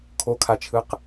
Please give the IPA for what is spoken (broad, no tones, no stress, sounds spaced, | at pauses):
kʰ o kʰ a t͡ʃʰ ɯ q